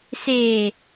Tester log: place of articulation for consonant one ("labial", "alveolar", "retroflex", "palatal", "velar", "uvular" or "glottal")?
alveolar